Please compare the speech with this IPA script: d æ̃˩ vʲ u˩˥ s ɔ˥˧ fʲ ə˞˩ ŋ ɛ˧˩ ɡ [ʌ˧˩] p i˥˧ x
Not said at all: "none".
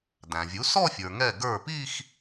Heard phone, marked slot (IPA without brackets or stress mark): ə˞˧˩